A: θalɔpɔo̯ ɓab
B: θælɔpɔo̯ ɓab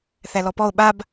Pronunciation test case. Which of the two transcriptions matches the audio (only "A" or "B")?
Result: B